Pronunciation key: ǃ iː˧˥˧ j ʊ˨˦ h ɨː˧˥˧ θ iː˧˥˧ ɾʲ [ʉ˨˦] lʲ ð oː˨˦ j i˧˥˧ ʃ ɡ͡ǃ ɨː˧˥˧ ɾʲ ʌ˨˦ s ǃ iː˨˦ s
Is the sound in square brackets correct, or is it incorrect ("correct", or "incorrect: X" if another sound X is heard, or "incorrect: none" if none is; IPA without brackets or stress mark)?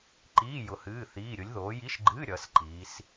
incorrect: ʊ˨˦